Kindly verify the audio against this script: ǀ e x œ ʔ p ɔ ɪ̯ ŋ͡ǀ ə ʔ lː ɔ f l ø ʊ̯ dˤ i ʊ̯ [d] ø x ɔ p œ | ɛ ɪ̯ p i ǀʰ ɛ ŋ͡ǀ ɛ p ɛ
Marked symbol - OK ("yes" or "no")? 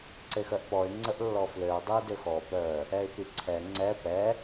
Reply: yes